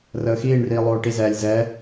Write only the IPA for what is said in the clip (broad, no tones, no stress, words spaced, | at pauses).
rəːxiːɳriː lˠoːʈizɛːlʲ zɛ